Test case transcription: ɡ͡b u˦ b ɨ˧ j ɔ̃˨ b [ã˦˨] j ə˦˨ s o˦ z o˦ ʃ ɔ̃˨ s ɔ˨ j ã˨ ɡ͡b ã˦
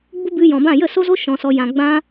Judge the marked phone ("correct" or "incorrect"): correct